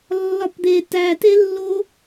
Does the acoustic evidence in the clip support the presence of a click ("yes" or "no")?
no